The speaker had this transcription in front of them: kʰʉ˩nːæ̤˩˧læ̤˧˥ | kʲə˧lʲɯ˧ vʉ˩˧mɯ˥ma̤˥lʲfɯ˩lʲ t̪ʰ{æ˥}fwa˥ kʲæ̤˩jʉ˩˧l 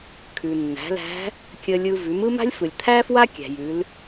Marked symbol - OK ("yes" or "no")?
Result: yes